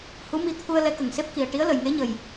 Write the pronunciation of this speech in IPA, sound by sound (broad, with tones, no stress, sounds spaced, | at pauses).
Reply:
h u˧˥ m i˧ t̪ʰ u˧ ə̯ l ɛ˧˥ k ə˨˩ ŋ s e˦˥ p̚ k i˨˩ ə̯ ʈ i˧˥ ə̯ l ə˨˩ j ŋ e˧˥ ɲ ə˨˩ j